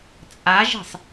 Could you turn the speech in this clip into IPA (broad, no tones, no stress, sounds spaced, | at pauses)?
t͡sʼ a ʒ i̤ sˤ